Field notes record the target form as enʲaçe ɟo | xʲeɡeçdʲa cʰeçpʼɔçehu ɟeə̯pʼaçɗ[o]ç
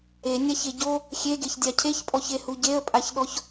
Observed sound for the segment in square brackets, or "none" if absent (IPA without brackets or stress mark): ɔ